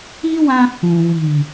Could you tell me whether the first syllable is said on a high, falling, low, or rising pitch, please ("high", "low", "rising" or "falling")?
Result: high